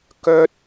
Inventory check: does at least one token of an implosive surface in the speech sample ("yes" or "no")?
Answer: no